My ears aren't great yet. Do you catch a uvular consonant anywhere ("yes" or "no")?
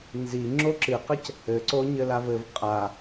yes